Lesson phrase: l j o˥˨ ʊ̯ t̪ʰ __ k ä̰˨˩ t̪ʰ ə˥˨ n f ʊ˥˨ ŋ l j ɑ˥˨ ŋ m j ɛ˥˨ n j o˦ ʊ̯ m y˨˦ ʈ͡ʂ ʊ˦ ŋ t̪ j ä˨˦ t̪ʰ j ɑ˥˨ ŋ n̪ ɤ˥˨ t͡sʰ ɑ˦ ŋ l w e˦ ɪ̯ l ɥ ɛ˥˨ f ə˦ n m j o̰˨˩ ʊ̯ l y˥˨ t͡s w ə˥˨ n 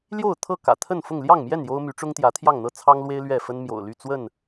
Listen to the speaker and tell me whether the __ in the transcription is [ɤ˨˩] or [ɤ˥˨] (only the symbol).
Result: ɤ˥˨